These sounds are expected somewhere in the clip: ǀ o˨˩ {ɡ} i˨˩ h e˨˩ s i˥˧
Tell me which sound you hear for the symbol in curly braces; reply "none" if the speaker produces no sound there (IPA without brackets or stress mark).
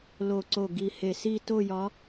ɡ